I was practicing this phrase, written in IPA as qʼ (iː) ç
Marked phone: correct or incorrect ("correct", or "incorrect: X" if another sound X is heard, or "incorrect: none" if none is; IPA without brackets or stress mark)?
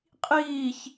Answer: correct